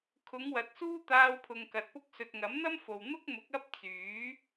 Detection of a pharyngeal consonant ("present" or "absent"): absent